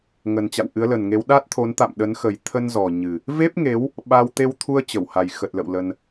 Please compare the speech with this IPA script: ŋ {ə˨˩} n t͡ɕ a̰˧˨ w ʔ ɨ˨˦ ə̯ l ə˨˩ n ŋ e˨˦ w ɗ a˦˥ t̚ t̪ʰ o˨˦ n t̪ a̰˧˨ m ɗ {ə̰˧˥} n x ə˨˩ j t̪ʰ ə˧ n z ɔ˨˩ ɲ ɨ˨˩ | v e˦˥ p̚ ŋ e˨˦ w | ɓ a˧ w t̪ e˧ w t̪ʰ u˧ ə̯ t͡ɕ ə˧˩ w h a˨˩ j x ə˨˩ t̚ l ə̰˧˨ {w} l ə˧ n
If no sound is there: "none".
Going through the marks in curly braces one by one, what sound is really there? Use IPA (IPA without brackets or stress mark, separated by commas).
ə˨˩, ə˨˦, w